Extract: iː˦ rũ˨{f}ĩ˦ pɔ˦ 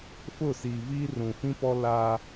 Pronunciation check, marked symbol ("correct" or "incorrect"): correct